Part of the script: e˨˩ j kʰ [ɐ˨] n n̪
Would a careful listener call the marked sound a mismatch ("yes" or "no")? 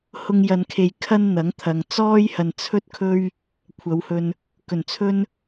yes